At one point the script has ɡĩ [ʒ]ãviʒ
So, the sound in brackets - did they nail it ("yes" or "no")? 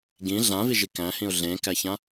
no